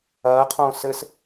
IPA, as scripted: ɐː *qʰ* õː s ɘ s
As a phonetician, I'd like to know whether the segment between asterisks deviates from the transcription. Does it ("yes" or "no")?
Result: no